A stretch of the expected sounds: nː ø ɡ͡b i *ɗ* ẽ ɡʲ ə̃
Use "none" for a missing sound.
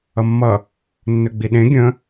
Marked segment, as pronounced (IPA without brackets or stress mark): ɗ